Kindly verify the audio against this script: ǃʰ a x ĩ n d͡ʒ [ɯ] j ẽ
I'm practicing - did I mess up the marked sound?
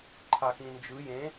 no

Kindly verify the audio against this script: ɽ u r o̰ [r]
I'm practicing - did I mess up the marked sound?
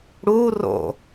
yes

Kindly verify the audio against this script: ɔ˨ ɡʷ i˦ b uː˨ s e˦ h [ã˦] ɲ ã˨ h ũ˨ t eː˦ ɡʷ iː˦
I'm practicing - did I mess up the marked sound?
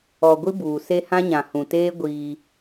no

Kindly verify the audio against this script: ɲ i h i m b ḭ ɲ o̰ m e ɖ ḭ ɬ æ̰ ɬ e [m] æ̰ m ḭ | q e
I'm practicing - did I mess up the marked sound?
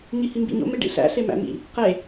no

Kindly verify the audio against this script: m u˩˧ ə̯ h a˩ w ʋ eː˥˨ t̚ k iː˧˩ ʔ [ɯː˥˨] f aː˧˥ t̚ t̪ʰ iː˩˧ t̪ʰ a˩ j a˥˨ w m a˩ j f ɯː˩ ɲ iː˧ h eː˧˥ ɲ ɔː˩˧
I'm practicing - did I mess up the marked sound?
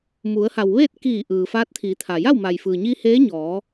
yes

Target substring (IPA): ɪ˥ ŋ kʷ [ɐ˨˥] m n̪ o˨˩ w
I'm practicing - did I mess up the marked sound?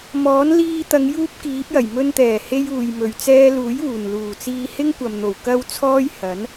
yes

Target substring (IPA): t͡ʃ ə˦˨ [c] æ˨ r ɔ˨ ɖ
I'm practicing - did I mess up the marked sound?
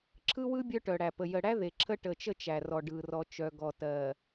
yes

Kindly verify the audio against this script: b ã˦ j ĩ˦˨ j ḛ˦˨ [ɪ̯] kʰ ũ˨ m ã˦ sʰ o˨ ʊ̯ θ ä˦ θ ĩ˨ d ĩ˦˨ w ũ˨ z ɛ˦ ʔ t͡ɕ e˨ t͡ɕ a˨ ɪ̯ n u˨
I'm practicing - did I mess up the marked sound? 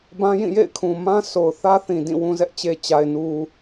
no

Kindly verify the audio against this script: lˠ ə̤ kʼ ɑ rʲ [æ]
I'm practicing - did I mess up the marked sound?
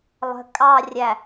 no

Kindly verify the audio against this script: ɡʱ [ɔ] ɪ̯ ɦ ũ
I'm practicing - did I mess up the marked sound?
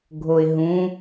yes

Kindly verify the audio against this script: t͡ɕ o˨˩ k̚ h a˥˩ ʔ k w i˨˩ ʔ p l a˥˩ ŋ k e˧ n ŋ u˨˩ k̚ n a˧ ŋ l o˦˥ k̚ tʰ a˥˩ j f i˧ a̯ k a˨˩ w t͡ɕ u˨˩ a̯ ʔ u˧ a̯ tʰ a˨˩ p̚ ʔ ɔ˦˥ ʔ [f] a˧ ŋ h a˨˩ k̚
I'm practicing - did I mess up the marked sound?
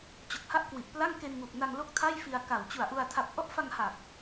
no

